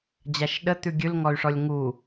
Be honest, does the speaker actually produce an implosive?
yes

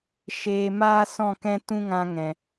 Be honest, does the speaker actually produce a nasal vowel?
yes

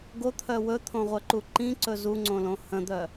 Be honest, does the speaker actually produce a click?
yes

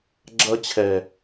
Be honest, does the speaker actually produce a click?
yes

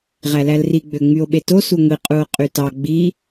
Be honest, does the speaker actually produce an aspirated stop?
no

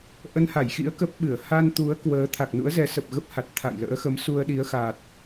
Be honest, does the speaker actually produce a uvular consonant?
no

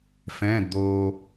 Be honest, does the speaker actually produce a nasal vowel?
yes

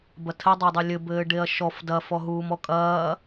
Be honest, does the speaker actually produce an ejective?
yes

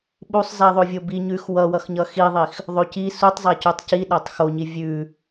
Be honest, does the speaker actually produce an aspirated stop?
no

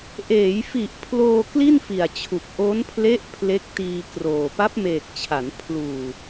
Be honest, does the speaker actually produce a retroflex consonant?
no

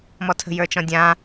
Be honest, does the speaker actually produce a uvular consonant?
no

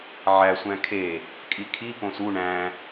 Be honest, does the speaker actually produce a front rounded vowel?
no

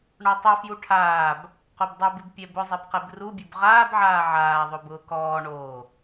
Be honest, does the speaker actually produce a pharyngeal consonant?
yes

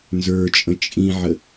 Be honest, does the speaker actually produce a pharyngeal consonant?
yes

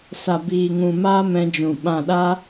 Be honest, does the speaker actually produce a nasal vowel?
yes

